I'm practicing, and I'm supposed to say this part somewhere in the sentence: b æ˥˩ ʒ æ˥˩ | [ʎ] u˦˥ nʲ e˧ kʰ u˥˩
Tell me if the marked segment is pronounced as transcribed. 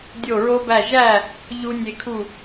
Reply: yes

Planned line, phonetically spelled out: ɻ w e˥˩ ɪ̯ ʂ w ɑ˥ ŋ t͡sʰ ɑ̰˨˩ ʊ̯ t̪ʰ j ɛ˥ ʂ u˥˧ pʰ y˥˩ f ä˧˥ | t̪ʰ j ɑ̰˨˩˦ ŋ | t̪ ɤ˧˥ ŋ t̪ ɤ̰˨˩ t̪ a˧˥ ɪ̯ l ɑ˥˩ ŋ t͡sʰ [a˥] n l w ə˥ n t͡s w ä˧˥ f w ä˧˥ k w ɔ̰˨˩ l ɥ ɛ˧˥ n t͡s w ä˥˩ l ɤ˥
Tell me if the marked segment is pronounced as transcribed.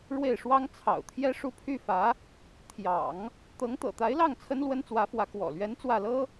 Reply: no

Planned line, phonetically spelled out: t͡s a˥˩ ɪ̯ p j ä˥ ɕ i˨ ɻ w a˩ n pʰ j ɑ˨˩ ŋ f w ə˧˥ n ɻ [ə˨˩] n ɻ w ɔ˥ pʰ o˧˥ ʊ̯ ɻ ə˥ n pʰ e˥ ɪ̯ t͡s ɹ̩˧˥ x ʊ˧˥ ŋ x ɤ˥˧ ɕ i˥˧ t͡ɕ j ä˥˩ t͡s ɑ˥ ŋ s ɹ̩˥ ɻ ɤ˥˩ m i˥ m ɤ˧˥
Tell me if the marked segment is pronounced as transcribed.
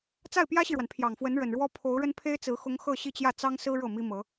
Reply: yes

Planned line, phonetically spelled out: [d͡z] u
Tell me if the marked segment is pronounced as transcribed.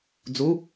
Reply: yes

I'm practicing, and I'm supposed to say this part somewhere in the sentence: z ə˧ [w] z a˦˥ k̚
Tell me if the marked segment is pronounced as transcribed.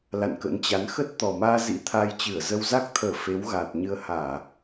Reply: yes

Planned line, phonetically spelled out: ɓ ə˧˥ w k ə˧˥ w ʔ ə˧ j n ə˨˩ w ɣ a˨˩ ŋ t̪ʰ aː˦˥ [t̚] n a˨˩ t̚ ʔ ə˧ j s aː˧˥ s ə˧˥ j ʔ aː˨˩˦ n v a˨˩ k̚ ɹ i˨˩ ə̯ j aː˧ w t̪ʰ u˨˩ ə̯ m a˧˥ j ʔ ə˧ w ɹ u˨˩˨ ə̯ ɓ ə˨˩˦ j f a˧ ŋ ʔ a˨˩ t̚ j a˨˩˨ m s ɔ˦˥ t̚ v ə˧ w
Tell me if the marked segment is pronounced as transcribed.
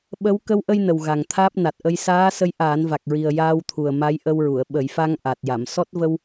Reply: no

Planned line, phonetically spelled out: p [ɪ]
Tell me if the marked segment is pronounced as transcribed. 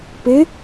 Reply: yes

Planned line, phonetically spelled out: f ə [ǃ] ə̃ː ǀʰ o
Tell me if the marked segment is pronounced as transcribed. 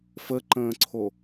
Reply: yes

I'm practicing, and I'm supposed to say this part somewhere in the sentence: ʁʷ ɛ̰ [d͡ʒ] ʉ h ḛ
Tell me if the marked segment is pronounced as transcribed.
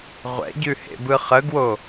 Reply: no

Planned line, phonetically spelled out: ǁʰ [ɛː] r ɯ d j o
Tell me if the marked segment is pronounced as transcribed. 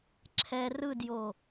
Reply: no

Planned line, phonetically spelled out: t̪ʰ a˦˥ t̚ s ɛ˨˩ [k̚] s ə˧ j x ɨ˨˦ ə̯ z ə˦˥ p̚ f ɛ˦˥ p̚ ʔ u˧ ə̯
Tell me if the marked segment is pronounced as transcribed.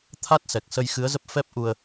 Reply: yes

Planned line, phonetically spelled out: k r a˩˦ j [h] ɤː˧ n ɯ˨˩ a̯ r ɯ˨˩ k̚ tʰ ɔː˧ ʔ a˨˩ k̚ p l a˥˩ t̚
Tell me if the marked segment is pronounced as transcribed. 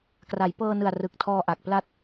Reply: no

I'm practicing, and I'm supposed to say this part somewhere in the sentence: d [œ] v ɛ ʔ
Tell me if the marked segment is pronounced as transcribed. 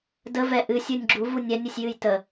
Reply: no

